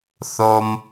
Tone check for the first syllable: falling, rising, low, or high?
low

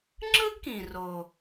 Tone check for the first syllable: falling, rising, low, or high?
high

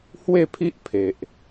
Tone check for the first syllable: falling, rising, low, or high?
falling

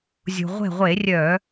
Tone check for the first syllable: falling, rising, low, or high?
low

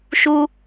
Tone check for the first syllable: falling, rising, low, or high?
high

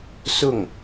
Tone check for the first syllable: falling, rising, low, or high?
falling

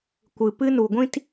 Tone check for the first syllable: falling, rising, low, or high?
low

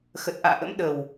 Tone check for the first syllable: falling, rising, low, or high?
low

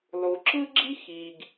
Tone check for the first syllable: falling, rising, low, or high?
low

